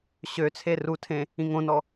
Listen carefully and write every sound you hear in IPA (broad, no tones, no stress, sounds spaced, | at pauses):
ɕ ø t͡sʰ e r u tʰ ẽ | ĩ ŋ õ n ɔ